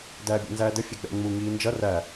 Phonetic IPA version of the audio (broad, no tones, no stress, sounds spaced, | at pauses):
d æː bʲ æ̰ n z æː d ə fʲ ɛ ɡ͡b ɛ̰ ŋ͡m u ŋ iː n d͡ʒ ʌ r æ